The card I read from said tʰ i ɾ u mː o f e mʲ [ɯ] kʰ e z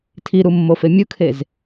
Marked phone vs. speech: correct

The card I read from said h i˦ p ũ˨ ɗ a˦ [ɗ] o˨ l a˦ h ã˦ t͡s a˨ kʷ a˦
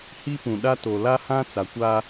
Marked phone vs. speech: incorrect: t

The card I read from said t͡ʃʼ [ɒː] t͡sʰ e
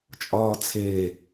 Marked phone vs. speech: correct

